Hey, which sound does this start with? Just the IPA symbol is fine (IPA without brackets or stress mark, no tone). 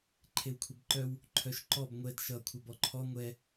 ǃʰ